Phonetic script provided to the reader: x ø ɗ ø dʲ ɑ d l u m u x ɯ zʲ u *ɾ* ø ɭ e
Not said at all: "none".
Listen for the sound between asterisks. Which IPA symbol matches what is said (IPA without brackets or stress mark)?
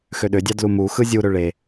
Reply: ɾ